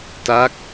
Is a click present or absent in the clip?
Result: absent